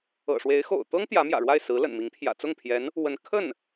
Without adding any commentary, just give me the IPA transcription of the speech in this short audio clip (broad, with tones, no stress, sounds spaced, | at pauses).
ɤ̰˨˩ ʂ w e˧˥ ɪ̯ x o̰˨˩ ʊ̯ t̪ ɤ˥ ŋ t̪ j ä˧˥ m j ä̰˨˩ ɻ w a˥˩ ɪ̯ s ɹ̩˧˥ l ə̰˨˩ n m i˧˥ ŋ pʰ j ä̰˨˩ t͡s ʊ˥˩ ŋ pʰ j ɛ˧˥ n | w ə˧˥ n kʰ ə˥˩ n